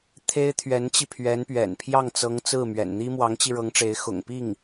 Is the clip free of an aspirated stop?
no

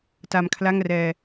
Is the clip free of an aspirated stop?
no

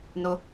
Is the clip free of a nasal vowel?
yes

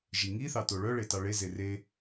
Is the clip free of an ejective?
yes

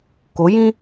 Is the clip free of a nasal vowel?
no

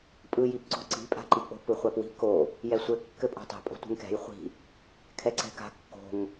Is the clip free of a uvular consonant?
no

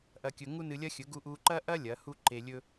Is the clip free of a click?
no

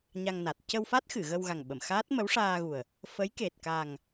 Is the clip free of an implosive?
no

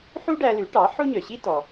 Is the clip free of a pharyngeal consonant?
no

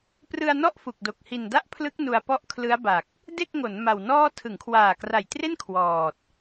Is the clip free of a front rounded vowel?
yes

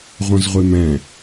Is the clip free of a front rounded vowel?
no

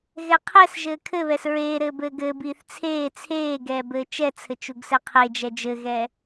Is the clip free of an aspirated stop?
no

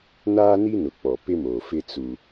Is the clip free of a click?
yes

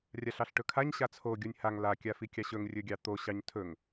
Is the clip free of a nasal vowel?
yes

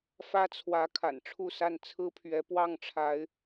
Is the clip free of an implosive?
yes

